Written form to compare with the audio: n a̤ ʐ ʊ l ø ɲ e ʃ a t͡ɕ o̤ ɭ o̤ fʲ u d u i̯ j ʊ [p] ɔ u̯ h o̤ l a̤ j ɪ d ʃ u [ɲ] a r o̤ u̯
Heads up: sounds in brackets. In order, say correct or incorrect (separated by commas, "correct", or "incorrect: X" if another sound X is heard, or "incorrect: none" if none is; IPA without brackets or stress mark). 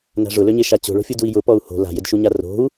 correct, correct